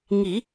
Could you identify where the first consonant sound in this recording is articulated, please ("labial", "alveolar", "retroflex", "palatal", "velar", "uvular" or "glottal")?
velar